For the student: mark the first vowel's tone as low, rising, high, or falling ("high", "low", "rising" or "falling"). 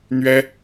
high